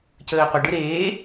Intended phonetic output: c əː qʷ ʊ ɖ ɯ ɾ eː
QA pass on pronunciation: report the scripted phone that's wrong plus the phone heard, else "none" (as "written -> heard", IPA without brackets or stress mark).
ʊ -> ə